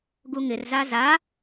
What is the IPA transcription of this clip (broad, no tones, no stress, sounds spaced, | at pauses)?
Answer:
ɡ u ŋ ɪ r z a z a